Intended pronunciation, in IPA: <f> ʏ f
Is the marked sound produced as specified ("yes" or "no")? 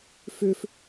yes